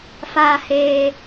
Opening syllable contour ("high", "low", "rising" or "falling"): high